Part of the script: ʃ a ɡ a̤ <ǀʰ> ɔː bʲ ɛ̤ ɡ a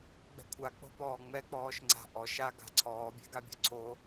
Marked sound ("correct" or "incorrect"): correct